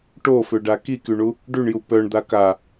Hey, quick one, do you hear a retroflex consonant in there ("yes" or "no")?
yes